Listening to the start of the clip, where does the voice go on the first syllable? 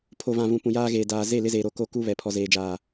low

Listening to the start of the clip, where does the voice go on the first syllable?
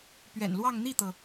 low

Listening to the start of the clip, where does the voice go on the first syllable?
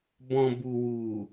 low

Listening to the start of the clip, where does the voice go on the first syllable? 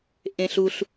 high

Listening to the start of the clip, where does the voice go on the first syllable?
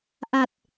low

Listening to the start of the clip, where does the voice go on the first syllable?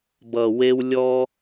low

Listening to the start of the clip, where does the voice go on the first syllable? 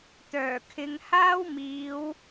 low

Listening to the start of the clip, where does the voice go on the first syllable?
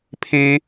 high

